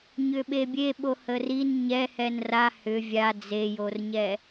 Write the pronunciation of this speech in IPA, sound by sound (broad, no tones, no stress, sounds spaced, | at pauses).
ɲ ʏ ɓ e bʲ e ɓ o h ə r i n ɲ ɛ h ɛ n r a h ʏ vʲ a d͡z e j o r ɲ ɛ